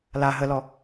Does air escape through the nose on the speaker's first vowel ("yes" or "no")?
no